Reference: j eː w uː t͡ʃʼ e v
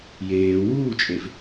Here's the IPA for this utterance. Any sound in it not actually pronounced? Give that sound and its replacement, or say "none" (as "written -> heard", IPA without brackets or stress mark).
none